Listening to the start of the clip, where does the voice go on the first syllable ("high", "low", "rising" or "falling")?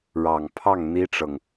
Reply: low